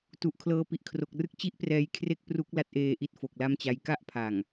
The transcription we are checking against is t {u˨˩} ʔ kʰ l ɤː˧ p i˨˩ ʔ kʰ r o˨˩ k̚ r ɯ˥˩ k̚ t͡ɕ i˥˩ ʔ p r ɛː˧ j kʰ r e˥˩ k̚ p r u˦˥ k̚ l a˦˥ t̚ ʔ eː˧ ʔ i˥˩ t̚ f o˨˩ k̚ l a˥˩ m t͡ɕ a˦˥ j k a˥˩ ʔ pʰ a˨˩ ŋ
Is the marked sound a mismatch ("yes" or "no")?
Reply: no